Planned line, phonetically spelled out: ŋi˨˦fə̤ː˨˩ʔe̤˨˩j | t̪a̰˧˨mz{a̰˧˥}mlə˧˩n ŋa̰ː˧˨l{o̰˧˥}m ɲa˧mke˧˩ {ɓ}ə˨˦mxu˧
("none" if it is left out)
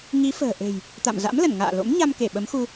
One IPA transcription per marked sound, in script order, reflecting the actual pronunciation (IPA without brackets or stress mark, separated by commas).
a̰˧˥, o̰˧˥, ɓ